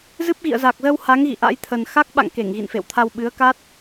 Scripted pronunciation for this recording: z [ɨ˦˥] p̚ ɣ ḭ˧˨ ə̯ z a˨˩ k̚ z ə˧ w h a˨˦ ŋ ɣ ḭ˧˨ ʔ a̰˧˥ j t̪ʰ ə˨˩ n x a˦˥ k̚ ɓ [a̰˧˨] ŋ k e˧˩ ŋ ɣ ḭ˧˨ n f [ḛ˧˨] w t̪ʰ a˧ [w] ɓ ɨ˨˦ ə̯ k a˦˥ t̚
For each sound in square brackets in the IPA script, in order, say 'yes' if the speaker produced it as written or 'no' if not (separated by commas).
yes, yes, yes, yes